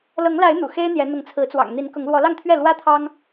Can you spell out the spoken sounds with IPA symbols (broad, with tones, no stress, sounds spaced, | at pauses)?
l ɤ˨˦ ŋ l a˨˦ ɪ̯ n̪ ṵ˨˩ x e˦ ɪ̯ n̪ j ɛ˨˦ n̪ ʊ˨˦ ŋ t͡sʰ ɹ̩˨˦ t͡s w ɑ̰˨˩ ŋ n̪ i˨˦ n k ʊ˨˦ ŋ l w ɔ˨˦ l ɑ˥˨ ŋ t̪ʰ ɥ ɛ˥˨ l w ä˦ t̪ʰ ɑ˦ ŋ